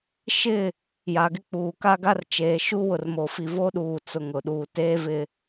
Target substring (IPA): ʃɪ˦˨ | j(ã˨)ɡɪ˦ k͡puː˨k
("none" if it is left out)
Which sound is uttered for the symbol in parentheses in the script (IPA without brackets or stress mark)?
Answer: a˨